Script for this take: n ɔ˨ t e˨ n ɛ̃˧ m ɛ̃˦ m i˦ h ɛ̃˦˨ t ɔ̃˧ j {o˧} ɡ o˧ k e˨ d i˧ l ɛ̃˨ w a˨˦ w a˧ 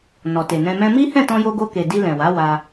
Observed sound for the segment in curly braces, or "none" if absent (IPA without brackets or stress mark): o˧